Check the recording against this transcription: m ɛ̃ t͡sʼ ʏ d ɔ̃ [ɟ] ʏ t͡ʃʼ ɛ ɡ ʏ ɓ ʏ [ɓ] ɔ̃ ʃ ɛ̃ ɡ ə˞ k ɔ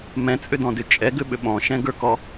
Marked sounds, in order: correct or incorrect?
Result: incorrect: d, correct

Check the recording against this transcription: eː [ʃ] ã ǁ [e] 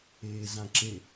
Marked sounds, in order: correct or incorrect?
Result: incorrect: z, correct

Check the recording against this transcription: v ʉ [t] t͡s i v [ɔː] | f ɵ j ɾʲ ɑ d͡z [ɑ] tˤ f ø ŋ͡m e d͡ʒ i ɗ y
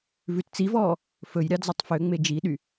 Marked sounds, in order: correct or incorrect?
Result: correct, correct, correct

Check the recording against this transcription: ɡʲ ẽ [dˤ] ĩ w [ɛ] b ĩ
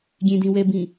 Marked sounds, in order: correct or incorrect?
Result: incorrect: d, correct

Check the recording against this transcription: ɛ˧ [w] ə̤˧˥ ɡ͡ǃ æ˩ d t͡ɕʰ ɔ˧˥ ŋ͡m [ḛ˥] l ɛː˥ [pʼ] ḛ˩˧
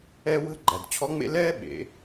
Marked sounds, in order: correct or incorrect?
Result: correct, correct, incorrect: ɓ

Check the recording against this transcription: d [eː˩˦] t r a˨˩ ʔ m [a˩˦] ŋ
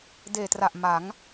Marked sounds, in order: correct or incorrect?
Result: incorrect: eː˨˩, correct

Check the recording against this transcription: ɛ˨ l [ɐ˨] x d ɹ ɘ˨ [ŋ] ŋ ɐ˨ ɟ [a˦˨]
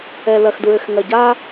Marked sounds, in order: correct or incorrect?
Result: correct, incorrect: x, incorrect: a˦

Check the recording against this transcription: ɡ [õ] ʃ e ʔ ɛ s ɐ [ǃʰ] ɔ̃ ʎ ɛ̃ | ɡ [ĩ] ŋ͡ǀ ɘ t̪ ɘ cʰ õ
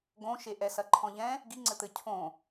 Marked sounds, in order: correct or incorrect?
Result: correct, correct, incorrect: i

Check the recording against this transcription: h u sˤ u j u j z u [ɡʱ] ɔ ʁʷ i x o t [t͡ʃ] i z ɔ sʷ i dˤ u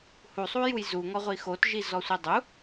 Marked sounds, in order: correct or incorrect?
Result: incorrect: ŋ, incorrect: ʒ

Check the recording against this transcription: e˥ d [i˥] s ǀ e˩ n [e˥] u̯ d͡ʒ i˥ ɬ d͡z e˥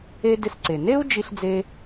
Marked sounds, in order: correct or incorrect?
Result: incorrect: ɪ˥, correct

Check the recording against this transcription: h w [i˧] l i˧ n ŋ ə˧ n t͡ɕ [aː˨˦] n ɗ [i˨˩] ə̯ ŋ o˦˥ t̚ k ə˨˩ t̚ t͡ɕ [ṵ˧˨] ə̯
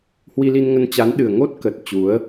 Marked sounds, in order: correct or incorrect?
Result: correct, incorrect: a˨˦, incorrect: ɨ˨˩, incorrect: u˨˦

